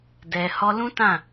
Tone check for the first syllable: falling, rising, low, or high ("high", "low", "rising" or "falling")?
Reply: low